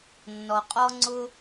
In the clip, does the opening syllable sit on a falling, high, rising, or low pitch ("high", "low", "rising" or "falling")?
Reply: low